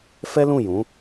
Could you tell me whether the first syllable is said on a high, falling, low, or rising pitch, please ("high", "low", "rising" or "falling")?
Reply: high